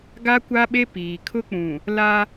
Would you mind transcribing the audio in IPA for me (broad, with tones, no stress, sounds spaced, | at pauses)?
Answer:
ɡ a˦ kʷ a˦ ɓ e˦ p iː˨ kʰ ʊ˦ k͡p ũ˨ | l a˦